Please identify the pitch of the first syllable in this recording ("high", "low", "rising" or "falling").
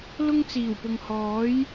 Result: high